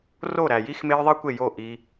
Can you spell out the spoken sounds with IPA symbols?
r o˦˨ ɾ æ˨ j i˦ x m e˦ j ðˤ i˦ kʷ e˦˨ j o˦˨ ʔ i˧

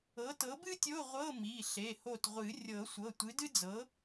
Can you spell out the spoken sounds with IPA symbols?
ɤ˨˥ t ɤ˨˥ b ɨ˥ tʲ o˧˥˧ ʁʷ ɤ˧˥˧ m i˩˧˩ ɬ e˩˧˩ h o˧˩ t ʁʷ ɨ˨˩˦ rʲ ɤ˨˩˦ sʷ ɤ˩˧˩ tʷ ɨ˨˥ d ɨ˥ d͡z ɤ˨˥

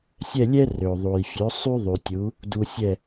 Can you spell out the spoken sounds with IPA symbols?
sʲ ɛ˥˩ lʲ ɛ˥ r ø˩ ðˤ u˩ j fʲ ø˩˥ sˤ y˥ ðˤ y˩ tʲ u˩˥ | d u˧ sʲ ɛ˥˩

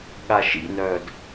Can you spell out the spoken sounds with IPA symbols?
ɠ a ʃ ḭ n œː d

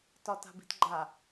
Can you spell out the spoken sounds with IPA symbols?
t ɒ t a̤ b i̤ t ɡ͡ǃ a

